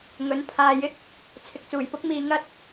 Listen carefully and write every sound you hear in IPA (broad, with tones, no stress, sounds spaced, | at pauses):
ŋ ɵ˨˥ n pʰ aː˨ j ɪ˥ k̚ | t͡sʰ ɪ˨ k̚ t͡s uː˨˩ j p ʊ˥ k̚ m iː˧ ŋ ɐ˥ t̚